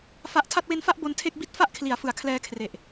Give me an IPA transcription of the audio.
fa˦˥ʔ tʰa˥˩t̚we˦˥nfa˥˩ʔ bo˦˥n tʰe˥˩k̚ bi˦˥t̚fa˦˥ʔkʰli˩˦a̯fɯ˩˦a̯ kʰlɛː˧kʰre˨˩ʔ

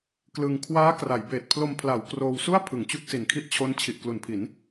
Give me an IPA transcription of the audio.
klɯ˧ŋ kʰwaː˦˥kra˩˦jbeː˨˩t̚pʰlo˧m pʰla˩˦w kroː˧wsu˥˩a̯ pʰɯ˩˦ŋt͡ɕu˦˥k̚si˨˩nkʰi˦˥ʔ t͡ɕʰo˦˥n t͡ɕʰi˨˩ʔklu˩˦npʰi˩˦n

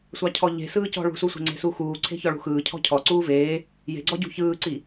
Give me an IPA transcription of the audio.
sʷɑcʰɔʎe̤ sɯːcɔ̤ ɭṳsusʷe̤ ŋ͡ǀe̤suxuː ǀʰe̤çɔɭṳxɯː cʰɔ̤cʰɔ ǀuːveː | je̤ɡ͡ǀɔɟṳ çɯːǀi

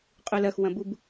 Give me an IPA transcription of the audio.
qʼulɐxwɐ̃bub

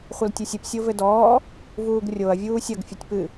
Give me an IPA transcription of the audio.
χʷɐltʲusʲɨp sʲovɘdɔː | vuːɡrʲoɐ̯ vʲuːsʲɐɡ fʲutʲpɨ

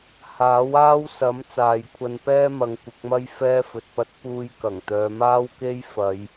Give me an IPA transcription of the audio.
haː˨˥waː˥wsɐ˨˥m t͡saː˨jkʷʰɐ˧npɛː˥mɐ˨˧ŋ kʷɪ˨˥k̚mɐ˥j fɛː˥fɵ˨t̚pɐ˥t̚ puː˧j kɐ˨˩ŋt̪œː˨˧ maː˥wke˥j fɐ˨˧j

